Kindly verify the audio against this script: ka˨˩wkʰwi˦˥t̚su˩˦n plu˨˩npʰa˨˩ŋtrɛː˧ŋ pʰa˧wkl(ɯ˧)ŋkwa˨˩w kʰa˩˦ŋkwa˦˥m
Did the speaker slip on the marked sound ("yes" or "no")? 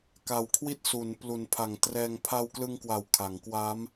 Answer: no